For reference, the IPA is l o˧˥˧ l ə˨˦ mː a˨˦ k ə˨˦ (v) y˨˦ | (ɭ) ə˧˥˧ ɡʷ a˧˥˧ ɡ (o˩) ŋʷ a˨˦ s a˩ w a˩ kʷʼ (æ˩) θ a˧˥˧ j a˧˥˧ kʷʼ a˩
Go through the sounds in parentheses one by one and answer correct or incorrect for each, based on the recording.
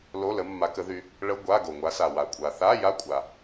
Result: incorrect: ð, correct, correct, incorrect: a˩

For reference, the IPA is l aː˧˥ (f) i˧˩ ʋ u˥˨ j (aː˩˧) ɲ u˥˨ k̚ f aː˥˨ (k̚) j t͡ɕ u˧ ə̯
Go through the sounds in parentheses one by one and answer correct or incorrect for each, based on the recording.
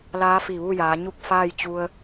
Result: correct, correct, incorrect: none

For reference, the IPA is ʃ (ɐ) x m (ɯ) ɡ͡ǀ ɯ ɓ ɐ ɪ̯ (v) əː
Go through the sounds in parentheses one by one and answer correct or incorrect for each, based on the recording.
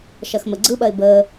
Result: correct, incorrect: ə, incorrect: b

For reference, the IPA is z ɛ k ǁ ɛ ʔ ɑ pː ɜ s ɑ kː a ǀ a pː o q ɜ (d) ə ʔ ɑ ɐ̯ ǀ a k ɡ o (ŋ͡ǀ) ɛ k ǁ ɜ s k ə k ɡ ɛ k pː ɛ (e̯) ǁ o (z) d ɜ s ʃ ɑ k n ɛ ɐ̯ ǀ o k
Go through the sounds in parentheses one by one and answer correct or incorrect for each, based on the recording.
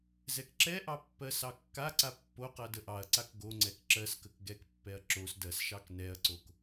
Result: correct, correct, incorrect: ɐ̯, incorrect: s

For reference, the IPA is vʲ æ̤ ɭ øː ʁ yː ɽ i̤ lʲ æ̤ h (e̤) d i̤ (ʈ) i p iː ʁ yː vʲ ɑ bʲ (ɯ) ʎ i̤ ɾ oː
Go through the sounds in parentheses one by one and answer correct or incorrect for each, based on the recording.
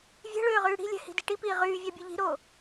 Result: incorrect: i̤, correct, correct

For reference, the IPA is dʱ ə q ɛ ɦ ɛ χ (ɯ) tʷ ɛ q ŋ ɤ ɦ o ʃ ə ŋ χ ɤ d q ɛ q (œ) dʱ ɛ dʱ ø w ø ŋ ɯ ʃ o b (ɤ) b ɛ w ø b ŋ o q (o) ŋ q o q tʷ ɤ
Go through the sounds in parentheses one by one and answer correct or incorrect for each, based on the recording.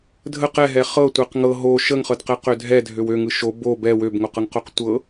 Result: incorrect: ɤ, incorrect: ø, incorrect: o, incorrect: ɤ

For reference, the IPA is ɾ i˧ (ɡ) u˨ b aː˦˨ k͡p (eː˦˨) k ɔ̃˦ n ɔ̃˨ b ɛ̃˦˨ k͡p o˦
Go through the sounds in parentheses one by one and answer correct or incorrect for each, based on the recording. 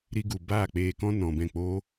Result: correct, incorrect: eː˧

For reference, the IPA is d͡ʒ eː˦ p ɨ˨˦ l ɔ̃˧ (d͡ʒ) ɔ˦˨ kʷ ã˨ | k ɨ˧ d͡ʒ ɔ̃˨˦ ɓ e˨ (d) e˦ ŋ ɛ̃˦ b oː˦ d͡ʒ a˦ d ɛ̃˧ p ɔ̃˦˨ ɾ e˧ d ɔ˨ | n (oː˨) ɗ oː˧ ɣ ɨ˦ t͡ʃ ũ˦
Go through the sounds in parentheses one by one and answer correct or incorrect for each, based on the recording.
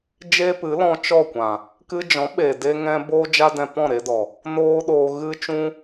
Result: incorrect: t͡ʃ, correct, incorrect: oː˦

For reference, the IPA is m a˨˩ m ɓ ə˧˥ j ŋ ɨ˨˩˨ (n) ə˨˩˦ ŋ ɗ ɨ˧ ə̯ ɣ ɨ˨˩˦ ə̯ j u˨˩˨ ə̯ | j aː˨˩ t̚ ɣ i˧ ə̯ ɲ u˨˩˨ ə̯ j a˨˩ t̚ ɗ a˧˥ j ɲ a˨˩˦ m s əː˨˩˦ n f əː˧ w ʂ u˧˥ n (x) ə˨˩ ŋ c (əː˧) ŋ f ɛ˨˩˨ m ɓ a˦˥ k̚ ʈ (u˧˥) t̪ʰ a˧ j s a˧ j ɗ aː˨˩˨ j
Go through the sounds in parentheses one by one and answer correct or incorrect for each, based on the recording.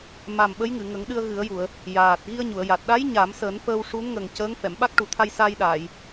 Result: incorrect: ŋ, incorrect: ŋ, incorrect: əː˧˥, incorrect: u˨˩

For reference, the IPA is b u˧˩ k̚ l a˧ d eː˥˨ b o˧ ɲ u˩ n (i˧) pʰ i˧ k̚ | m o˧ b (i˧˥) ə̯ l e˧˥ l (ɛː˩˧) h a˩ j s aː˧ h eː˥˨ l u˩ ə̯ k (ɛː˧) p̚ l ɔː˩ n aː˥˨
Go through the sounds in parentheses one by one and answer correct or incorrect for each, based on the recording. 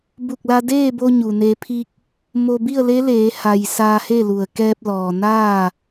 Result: incorrect: e˧, incorrect: i˥˨, incorrect: eː˩˧, correct

